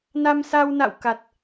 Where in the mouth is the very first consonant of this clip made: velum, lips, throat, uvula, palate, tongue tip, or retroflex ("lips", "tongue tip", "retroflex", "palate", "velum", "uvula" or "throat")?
tongue tip